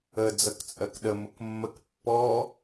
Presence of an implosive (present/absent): present